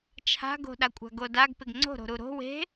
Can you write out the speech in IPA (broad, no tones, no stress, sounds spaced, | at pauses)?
t͡ʃʰ a̤ ɡ o̤ ɗ a kʷʼ a̤ ɡ o d a ɡ p ɪ ɡ ŋ͡ǀ o̤ ɾ o̤ ɾ u ɾ o̤ w e̤